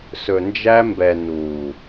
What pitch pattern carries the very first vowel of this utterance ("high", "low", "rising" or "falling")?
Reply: low